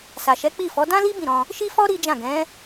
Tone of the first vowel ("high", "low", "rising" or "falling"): low